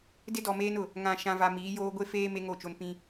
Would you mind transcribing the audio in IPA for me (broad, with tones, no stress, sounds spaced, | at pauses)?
d ɪ˦ d ɔ˨ m eː˦ n ʊ˨ | ŋ ã˨ ʃ ã˨ v a˨ m iː˨˦ j oː˦ ɡʷ e˦ f eː˦ m e˦ ŋ o˦˨ t͡ʃ o˦ n p ĩ˦